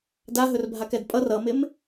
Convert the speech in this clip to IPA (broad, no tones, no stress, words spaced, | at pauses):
daɦɵrbʱakɛd pʼʌr ʌmɪm